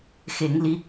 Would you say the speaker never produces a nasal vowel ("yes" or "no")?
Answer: yes